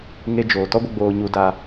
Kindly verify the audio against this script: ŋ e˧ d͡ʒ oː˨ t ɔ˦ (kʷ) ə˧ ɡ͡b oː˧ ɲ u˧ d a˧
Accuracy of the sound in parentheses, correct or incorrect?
incorrect: ɡʷ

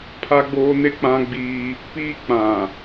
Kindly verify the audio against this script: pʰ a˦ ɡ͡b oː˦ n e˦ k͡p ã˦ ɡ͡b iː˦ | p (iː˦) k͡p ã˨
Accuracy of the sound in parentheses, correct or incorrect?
correct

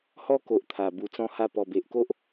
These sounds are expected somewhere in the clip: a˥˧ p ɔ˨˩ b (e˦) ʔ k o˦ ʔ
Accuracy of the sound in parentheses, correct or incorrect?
incorrect: e˨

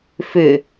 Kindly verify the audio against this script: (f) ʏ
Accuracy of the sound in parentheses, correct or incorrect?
correct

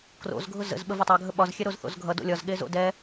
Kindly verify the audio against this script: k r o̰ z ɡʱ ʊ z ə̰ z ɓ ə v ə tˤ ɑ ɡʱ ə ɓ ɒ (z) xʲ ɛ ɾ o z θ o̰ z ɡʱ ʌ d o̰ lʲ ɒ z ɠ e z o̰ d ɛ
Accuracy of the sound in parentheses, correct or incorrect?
correct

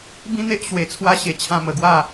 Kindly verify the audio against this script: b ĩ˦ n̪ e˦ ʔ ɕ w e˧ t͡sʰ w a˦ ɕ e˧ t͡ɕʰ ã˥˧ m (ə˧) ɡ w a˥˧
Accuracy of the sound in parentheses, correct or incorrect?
correct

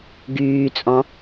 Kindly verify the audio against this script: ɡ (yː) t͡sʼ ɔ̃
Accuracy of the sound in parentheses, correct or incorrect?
correct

